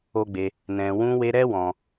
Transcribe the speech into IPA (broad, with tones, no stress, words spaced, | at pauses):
o˦ɡ͡be˧ | nɛ̃˨wũ˧we˧ɾɛ˦ wɔ̃˧